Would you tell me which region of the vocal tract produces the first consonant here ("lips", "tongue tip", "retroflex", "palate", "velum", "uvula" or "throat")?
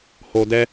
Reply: throat